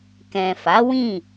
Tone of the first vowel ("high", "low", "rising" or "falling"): low